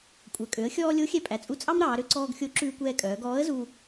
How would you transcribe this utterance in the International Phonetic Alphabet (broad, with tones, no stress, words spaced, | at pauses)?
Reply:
kʷʼœ˩kʼø˩˧ə̯xʲɔː˧ lʲo˧˥xʲɛ˧pʼæ˩t͡sʼu˧ t͡sʼɑ˥mɾɑː˩˧ɾø˧ ǀɔː˧ɡxʲo˧˥ ǁʉː˧kʷɛː˧kʼœː˩˧ ɡɔː˧˥ə̯zu˧